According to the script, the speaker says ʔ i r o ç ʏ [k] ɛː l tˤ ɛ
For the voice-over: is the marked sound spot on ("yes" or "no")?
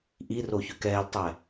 yes